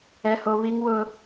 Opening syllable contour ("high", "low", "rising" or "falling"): high